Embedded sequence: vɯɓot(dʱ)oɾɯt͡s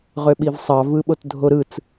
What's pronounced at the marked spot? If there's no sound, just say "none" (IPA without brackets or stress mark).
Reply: dʱ